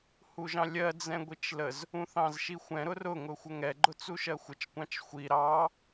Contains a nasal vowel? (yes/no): yes